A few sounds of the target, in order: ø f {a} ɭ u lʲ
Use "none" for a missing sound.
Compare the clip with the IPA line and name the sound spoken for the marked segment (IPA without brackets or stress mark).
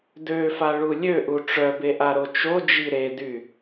a